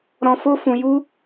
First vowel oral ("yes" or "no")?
no